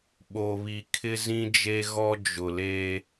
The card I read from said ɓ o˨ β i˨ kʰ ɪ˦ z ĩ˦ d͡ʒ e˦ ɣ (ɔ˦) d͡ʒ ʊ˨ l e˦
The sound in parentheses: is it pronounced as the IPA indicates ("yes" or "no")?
yes